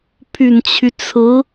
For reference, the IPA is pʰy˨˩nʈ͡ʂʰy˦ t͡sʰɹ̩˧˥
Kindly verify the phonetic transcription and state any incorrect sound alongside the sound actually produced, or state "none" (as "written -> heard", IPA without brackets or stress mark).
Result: ʈ͡ʂʰ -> t͡ɕʰ